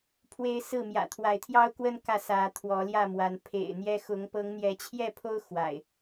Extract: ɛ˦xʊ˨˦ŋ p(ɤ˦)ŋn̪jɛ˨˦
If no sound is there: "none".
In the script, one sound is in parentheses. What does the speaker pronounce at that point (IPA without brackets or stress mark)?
ɤ˨˦